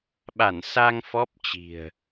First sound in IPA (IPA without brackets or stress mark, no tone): ɓ